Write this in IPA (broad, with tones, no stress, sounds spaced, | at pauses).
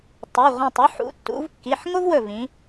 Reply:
tˤ ɵ˩˧˩ ʁʷ ẽ˧˩ tˤ u˥ ħ ṵ˩˧ tː ṵ˩˧ v kː i˩˧˩ ħ ŋ o˥ v w ɵ˧˩ v ĩ˩˧